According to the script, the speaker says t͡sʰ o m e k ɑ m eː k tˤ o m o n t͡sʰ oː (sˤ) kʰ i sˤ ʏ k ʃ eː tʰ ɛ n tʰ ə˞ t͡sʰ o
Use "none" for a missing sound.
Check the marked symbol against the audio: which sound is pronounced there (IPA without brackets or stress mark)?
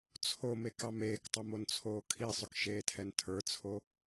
none